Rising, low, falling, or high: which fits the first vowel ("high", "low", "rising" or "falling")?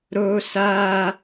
high